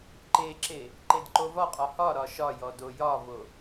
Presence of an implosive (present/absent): absent